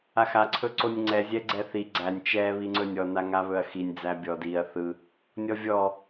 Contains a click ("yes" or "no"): yes